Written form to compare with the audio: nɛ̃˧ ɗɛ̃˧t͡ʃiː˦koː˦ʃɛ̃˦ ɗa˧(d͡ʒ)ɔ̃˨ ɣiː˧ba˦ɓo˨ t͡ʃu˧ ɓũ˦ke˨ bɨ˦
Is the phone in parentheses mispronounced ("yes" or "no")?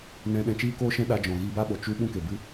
no